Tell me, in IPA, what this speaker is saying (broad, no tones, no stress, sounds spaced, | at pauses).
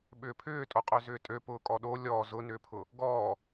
ɓ ʏː pʰ ʏː tʼ o qʼ ø z ʏː tʼ ø p ʊː kʼ ɔ ɗ o lʲ ɔ z ʊ n ʏː pʰ ʊ | ɡ ɔː